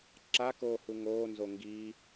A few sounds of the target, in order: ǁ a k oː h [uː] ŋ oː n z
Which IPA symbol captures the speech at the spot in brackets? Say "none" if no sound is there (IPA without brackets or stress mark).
u